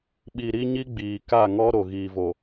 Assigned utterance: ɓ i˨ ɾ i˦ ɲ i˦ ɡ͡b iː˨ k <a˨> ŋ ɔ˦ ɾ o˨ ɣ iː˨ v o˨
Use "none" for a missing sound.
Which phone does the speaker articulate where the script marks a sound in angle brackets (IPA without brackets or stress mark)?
a˦˨